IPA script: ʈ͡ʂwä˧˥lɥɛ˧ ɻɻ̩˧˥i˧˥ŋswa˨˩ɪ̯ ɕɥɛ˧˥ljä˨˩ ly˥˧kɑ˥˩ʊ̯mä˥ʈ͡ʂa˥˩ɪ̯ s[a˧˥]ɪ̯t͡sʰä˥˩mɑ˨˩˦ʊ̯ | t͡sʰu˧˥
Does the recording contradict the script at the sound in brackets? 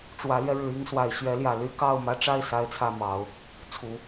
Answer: yes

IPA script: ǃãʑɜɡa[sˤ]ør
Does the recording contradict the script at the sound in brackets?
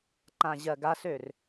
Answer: yes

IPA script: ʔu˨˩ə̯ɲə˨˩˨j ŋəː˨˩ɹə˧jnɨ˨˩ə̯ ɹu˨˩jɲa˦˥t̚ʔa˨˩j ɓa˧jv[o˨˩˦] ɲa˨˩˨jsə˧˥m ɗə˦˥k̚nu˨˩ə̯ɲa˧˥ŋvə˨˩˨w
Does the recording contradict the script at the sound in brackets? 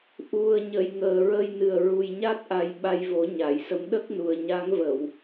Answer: no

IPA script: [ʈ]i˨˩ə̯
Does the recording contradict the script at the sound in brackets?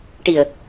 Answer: no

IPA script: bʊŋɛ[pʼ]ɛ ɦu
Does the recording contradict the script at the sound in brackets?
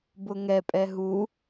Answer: no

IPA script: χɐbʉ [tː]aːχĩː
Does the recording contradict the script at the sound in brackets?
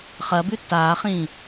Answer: no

